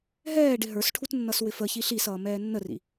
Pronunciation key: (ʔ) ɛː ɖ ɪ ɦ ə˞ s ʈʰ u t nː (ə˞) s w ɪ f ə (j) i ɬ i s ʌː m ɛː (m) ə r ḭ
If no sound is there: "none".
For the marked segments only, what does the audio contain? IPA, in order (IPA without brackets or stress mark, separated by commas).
ɦ, ʌ, ç, nː